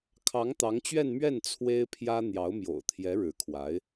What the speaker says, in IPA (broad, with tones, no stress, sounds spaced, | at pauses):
kʰ ɑ˧˥ ŋ t̪ ɑ˧˥ ŋ t͡ɕ ɥ ɛ˥˧ n m ɥ ɛ˥˩ n t͡sʰ w e˥ ɪ̯ pʰ j ä˥ n̪ j ɑ˧˥ ʊ̯ m j o̰˨˩ ʊ̯ t̪ʰ j ɛ˧˥ ɻ ɻ̩˧˥ kʰ w a˧˥ ɪ̯